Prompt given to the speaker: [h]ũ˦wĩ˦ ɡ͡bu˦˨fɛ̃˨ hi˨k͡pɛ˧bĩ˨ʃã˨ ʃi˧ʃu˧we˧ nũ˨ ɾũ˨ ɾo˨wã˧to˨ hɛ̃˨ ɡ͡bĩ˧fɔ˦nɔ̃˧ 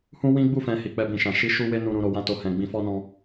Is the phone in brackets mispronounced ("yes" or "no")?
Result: no